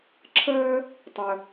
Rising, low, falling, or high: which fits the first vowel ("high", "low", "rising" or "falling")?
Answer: high